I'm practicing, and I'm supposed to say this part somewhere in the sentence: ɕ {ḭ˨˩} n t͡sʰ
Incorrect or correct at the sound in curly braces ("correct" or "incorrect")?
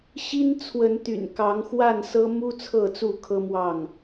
incorrect